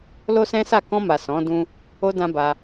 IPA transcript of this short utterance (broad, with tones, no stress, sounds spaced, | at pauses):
l o˦ s ɛ̃˦ s a˦˨ k ɔ̃˧ m a˨ s ɔ̃˨˦ d ũ˦ | o˧ d ã˧ b a˧